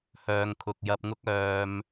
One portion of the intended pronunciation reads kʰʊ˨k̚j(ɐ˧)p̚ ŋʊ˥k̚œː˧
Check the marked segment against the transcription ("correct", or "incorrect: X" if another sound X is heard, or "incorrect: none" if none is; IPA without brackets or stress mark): correct